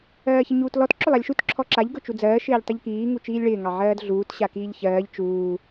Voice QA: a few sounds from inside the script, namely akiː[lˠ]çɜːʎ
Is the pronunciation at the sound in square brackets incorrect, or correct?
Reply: incorrect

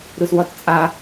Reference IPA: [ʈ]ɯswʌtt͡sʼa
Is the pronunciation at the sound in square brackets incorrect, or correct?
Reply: incorrect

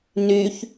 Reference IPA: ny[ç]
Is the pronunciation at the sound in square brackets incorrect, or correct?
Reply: correct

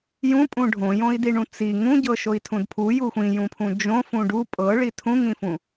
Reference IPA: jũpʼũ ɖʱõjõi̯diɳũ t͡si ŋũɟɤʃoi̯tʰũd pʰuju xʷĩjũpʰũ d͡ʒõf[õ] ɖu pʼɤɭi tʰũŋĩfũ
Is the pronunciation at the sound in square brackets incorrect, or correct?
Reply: incorrect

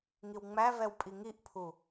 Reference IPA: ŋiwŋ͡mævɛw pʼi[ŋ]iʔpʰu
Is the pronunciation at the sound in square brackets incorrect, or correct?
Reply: correct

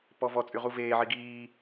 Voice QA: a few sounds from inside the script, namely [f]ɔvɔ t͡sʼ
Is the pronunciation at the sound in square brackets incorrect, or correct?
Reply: incorrect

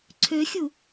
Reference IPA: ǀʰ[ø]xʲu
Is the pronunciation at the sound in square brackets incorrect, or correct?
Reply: correct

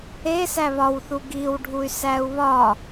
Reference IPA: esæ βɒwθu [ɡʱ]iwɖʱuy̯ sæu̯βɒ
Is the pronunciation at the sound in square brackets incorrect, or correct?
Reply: incorrect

